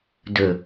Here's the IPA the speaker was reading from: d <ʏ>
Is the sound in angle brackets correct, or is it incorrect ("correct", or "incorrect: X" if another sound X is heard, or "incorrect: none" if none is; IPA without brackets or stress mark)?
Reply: correct